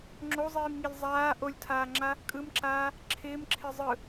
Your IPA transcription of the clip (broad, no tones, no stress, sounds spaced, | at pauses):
ŋ͡ǁ o zˤ iː m ŋ i lʲ zˤ aː ʔ o lʲ tʰ aː ŋ͡ǁ a | kʼ ɯ m ǁ aː | ǁʰ ɪː m ǁʰ ɪ zˤ ɯ